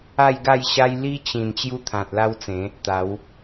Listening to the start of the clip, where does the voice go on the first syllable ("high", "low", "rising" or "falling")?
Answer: falling